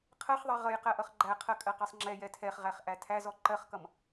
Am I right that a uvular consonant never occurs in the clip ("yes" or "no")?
no